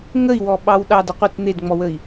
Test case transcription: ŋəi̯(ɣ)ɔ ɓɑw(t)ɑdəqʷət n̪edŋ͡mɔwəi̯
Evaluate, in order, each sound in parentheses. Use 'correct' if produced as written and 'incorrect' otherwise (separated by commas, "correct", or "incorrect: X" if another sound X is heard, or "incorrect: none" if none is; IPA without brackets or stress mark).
incorrect: w, incorrect: ɗ